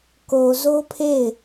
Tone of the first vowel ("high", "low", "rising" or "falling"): low